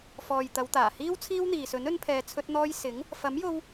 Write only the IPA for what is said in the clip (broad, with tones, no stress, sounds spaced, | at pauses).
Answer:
f ɔː˨ j t̪ ɐ˨˧ w t̪ aː˨˩ h iː˥ w t͡sʰ iː˥ w n̪ iː˨ s ɵ˨˥ n ɵ˧ n pʰ ɛː˨ t͡sʰ ɵ˧ t̚ n̪ ɔː˧ j s ɪ˨˥ ŋ | f ɐ˨˥ m j o˧ w